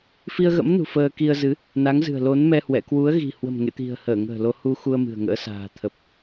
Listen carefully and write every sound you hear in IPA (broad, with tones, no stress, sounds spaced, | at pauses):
f i˧ ə̯ ɣ ə̰˧˥ m n ṳ˨˩ f əː˧ k i˧ ə̯ z ɨ˨˦ | n a˨˦ ŋ z ɨ̤˨˩ ə̯ l o˨˦ n m ɛ˧ h w ɛ̰˧˨ k w u˨˦ ə̯ ɣ i̤˨˩ h w ə̤˨˩ m ŋ ḛ˧˨ t̪ i̤˨˩ ə̯ h əː˧˩ ŋ ə̤ː˨˩ l o˧ h u˧ x u˧ ə̯ m ɨ̤˨˩ ə̯ ŋ ə̰ː˧˥ s a̤ː˨˩ t̪ʰ ə˨˩ p̚